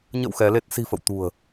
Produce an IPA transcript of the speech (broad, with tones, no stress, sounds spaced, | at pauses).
ɲ ə̰˧˨ w x ɛ˨˦ l e˦˥ t̚ s i̤˨˩ f ə̰˧˨ w t̪ ṳ˨˩ ə̯